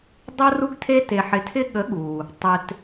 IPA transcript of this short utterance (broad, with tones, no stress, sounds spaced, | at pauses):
dˤ ə˥ r u˥ ɡ tʰ e˥ t e˧ ħ ɪ˧ tʰ ɪ˥ ɠ ə˨˥ ɠ u˩ | tˤ ɪ˧ t